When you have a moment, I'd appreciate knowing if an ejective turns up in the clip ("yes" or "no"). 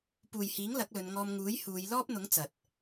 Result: no